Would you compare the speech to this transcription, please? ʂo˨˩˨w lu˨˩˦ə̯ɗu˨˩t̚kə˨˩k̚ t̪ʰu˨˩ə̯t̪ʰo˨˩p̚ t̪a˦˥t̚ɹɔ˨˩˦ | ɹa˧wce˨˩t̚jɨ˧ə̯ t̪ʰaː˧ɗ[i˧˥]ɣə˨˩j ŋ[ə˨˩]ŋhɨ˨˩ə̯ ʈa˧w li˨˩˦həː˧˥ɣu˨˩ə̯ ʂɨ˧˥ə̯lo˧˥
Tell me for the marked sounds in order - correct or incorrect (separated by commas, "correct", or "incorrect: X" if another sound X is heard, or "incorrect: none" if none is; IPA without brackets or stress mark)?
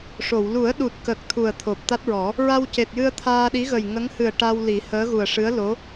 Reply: correct, incorrect: ə˧˥